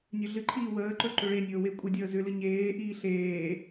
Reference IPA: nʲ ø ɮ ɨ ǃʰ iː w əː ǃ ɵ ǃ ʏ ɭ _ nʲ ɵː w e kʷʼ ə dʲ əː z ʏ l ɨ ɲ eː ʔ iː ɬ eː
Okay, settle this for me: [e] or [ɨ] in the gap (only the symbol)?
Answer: e